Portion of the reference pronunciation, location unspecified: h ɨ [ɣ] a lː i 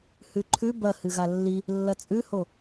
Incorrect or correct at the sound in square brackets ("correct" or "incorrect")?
correct